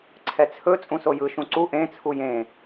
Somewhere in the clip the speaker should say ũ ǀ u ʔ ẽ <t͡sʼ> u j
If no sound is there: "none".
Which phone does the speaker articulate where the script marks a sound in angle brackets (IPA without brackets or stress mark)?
t͡sʰ